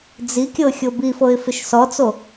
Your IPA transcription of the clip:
d͡z i kʲ ɤ xʲ o b i f ɤ ɪ̯ f ɪ ʃ s ɔ t͡s o

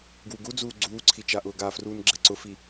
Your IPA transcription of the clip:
ɡ w u ɡ u d͡z uː ɡ͡ǀ uː ǀʰ i t͡ʃ a ʔ ʊː ɡ a f r uː n ɡ͡ǁ ɛ ǀ ʊ f i

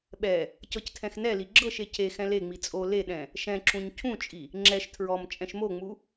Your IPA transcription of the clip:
ɓ ɛ | c ɤ c tʰ ɛ̃ x n ɛ l i ɡ͡ǁ ɤ ʃ e cʰ e x ɛ̃ l e ŋ͡m i t͡sʼ o l e ɗ ɛ̃ | ʃ ɛ̃ ǁ ũ ɲ cʰ ũ t͡ʃʼ i | ŋ͡ǁ ɛ ʃ tʰ ɹ ɔ m t͡ʃʼ ɛ̃ ʃ m o ŋ͡m u

